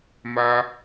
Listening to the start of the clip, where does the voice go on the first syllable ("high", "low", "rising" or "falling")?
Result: high